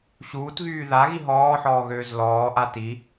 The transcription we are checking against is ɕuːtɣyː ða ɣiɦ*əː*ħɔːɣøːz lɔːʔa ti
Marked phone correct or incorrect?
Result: incorrect